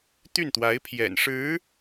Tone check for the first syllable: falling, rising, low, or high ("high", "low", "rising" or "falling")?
falling